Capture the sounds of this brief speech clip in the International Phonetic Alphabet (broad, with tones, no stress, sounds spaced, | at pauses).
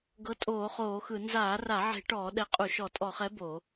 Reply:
ɡ ɤ˨˥ tʼ oː˧˩˧ χ oː˧˩˧ x ɯ˧˩˧ n z aː˧˩˧ r a˧˩˧ ʕ e̤˧˩˧ ʈ ɔː˧˩˧ ɗ ɛ˨˥ qʼ u˧˩˧ ʃ ɔ˧˩˧ tʼ ɔ˧˩˧ χ ɛ˨˥ b o˧˩˧